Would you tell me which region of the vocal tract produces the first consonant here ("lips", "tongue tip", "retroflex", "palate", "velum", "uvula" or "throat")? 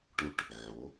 retroflex